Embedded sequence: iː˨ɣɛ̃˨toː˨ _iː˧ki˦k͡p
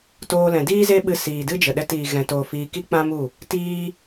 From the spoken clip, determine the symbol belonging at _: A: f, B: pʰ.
A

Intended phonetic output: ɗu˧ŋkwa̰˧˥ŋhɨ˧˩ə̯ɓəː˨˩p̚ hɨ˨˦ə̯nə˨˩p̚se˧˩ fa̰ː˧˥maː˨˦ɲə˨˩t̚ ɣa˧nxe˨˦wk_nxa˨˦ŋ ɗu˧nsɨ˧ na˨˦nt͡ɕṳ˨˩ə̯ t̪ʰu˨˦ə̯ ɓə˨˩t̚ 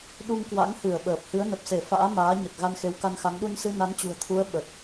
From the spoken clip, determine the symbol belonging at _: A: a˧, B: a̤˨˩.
A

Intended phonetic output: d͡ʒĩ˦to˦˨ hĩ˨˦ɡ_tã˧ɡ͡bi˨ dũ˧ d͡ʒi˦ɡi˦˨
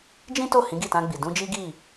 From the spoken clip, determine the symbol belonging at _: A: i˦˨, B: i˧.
A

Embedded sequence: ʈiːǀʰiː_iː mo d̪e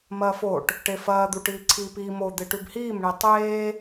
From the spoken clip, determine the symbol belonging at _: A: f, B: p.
B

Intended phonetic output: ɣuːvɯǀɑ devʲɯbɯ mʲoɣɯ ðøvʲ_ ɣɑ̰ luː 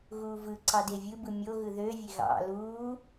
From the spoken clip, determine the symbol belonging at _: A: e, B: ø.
A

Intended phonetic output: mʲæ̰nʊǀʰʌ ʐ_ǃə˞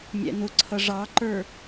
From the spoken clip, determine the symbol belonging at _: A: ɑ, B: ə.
A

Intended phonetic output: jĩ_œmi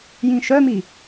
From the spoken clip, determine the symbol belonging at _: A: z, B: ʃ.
B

